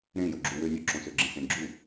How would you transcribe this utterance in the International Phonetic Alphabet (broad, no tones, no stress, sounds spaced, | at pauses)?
ɾ ẽ j o ɡ͡ǁ u w ø nʲ o ǁ õ s ø ɡ͡ǁ ẽ s ẽ ɡ͡ǁ u